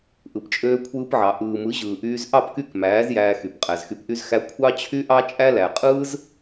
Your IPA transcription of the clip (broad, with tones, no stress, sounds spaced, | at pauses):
ʔ ɯ˧ p t͡ʃʼ øː˦ kʷʰ ɯː˧ p ʕ ɑ˨ ʔ ɯː˨ m ɯ˨˦ ʑ ɯː˨ ʔ yː˧ z ʔ ɑ˦˨ p k y˦˨ k m æː˨˦ z j æː˧ x y˨ p qʼ æ˨ z x y˧ p ʔ y˦ z x æ˦ kʷʰ ɑ˦ t͡ɕʰ y˦ ʔ ɑ˦ t͡ʃʼ æ˦ l æ˨ qʼ ɯː˦ z